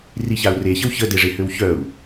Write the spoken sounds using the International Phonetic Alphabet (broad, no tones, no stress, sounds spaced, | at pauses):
r i ç a u̯ r e ç ə w ç ə d e ʐ e h ø w ç œ u̯